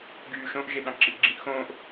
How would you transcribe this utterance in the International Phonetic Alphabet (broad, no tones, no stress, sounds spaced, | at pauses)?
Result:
ɡ yː ʃ õ ʔ ʒ e ɗ ɑ̃ ǁ i ʔ ɡ͡ǁ ĩ ʔ x õː ʔ